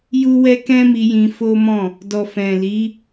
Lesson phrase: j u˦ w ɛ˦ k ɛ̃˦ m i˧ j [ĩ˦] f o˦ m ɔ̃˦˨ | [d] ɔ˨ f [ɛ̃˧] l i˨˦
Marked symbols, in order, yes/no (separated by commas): no, yes, no